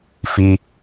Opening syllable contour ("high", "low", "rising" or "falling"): low